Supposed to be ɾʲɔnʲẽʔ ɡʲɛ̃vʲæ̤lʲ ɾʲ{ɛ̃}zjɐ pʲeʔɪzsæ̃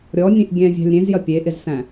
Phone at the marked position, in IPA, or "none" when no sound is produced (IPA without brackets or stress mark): ẽ